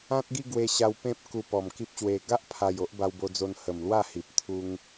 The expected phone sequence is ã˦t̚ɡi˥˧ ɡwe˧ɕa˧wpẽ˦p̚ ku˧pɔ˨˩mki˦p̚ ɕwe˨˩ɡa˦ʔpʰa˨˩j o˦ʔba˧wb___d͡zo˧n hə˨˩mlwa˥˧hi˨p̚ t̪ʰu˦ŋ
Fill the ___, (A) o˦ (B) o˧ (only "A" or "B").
B